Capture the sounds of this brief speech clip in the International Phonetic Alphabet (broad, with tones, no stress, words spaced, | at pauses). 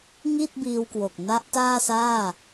ŋi˥˩t̚biː˧wkwo˨˩k̚ na˦˥ʔtaː˥˩saː˥˩